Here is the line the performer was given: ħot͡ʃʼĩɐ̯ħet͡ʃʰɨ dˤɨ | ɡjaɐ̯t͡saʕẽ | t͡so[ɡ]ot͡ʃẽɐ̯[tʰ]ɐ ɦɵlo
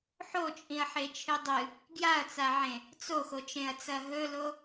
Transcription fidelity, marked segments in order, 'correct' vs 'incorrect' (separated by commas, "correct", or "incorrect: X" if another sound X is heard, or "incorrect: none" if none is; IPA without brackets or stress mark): incorrect: x, incorrect: t͡s